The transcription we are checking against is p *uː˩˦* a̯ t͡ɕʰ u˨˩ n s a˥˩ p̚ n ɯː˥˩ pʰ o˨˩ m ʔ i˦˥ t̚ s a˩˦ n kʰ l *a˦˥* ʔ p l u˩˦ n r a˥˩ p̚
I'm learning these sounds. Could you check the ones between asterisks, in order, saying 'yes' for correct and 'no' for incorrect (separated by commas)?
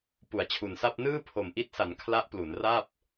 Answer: no, yes